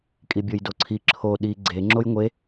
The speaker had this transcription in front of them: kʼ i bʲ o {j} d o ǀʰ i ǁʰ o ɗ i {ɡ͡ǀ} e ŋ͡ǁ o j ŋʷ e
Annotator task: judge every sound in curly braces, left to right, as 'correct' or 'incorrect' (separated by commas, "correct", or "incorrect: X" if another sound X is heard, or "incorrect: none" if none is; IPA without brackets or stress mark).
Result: correct, correct